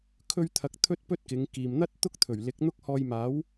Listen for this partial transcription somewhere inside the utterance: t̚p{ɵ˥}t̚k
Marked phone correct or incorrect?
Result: correct